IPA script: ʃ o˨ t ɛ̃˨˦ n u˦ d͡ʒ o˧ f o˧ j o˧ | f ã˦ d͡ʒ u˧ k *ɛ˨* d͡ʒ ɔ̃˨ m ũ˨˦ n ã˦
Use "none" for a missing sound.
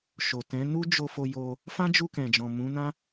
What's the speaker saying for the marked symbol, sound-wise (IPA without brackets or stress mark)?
ɛ̃˨